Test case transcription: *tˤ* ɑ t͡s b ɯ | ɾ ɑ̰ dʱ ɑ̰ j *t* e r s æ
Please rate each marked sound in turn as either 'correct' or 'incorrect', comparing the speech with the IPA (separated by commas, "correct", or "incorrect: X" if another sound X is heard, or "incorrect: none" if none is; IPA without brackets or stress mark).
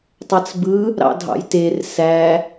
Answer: correct, correct